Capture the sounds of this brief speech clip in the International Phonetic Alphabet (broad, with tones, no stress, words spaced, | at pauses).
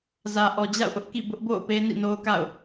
zä˨ʔɔ˨d͡ʑa̰˦˨ʊ̯ʔʊ˦ʔ kḭ˦˨ bʊ˦ʔbo̰˦˨ʊ̯ pe˦nḭ˦˨no˦ʊ̯ka̰˦˨ʊ̯